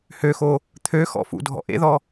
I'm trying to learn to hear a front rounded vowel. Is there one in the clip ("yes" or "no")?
yes